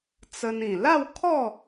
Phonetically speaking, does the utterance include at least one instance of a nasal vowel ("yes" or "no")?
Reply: yes